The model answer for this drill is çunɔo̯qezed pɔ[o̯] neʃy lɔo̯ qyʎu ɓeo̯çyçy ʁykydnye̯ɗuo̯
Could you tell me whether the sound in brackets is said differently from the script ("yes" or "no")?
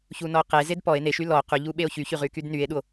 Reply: yes